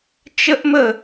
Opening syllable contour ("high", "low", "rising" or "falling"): high